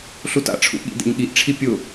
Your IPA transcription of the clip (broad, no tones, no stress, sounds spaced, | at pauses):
ɬ u t a̰ ʈ͡ʂʰ ṵ ɠ ḭ d ḛ ɲ ɠ i ʔ ʈ͡ʂʰ i pʲ ʊ